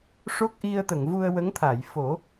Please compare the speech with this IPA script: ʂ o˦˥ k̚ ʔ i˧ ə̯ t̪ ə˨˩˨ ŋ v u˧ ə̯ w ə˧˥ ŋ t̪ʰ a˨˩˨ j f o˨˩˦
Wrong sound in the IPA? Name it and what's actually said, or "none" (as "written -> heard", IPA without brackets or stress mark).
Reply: none